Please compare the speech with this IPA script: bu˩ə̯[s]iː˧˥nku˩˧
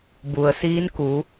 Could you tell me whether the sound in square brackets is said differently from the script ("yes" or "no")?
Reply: no